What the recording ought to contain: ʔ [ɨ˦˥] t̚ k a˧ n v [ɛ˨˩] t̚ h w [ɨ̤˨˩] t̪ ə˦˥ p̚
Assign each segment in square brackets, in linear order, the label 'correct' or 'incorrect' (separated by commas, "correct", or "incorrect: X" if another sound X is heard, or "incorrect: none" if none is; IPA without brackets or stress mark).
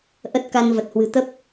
incorrect: ə˦˥, incorrect: ə˨˩, correct